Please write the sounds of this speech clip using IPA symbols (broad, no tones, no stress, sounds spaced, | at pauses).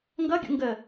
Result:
ŋ ɡ ʌ ɡʲ ṵ ŋ ɡ ə